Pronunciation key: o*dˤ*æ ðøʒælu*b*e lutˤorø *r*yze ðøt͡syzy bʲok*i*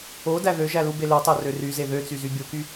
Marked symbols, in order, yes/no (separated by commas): no, yes, yes, no